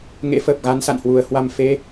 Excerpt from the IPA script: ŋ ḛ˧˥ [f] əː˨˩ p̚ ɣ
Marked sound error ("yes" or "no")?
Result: no